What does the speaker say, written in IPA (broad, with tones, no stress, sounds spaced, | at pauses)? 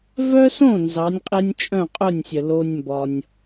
v œ˥ s õ˥˩ n z ɑ˩˥ nʲ qʼ e˥ nʲ t͡ʃʼ œ̃˥˩ qʼ œ˥˩ nʲ sʲ ə˩ l o˧ nʲ m b ɒ˩ nʲ